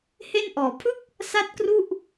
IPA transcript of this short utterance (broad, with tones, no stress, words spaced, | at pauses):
he˥˩nʔɔː˩˦ pʰɯ˥˩k̚ | sa˥˩t̚kru˥˩ʔ